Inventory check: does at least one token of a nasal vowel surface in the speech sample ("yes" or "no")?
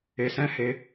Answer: yes